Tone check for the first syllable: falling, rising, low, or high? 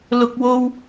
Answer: high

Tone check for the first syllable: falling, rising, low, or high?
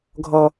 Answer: high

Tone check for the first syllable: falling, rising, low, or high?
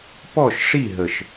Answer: falling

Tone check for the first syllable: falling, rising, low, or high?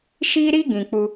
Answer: high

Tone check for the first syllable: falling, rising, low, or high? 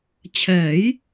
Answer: rising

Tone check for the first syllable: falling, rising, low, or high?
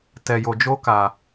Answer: low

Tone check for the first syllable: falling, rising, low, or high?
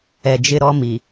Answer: low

